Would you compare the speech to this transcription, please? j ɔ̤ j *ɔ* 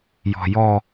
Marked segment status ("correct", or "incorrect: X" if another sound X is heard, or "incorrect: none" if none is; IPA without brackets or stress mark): correct